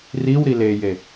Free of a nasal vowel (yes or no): yes